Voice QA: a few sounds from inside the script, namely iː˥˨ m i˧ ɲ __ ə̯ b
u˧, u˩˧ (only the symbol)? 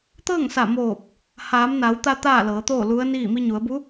u˩˧